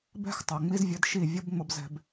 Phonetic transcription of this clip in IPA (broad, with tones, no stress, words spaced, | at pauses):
bɛ̤˦xtˤo˨ ŋ͡mi˦zvʲɨ˨˦dʃi˦˨ vʲə˦b ŋ͡mʊ˦bzɛ̤˦b